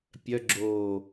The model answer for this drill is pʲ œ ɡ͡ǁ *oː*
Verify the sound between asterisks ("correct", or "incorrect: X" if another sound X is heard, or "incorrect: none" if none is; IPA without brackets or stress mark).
correct